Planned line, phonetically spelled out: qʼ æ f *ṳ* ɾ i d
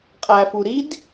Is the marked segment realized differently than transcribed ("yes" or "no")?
yes